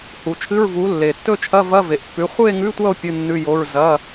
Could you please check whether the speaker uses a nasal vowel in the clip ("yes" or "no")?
no